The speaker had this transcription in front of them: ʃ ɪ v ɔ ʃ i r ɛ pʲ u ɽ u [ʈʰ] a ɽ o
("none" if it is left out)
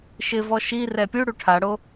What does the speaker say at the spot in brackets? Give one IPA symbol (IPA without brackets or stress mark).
ʈʰ